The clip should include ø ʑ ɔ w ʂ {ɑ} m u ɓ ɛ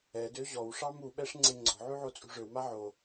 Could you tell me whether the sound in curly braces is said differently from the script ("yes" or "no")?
no